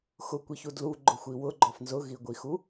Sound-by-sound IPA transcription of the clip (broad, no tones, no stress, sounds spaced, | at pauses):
x ʊ kʷ i ç u d l u ɡ͡ǃ ʊ xʷ i w ʊ ɡ͡ǃ ɔ f n z ʊ ɣ i ɡʷ i x u